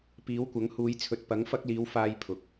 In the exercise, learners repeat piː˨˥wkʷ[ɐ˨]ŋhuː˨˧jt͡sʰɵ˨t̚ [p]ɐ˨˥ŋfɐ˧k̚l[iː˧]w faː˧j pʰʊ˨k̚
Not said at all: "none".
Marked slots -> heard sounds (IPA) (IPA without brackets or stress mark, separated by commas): ɐ˨˥, p, iː˨˧